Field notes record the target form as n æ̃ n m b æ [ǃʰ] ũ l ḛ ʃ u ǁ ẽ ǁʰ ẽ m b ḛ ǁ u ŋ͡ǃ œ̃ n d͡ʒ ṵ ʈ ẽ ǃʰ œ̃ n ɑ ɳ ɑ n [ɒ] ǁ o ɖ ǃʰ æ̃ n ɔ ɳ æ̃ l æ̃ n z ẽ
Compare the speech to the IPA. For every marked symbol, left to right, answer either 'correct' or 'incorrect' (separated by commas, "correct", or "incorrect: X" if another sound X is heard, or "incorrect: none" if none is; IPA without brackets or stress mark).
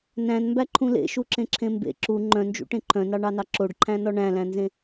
correct, incorrect: ɑ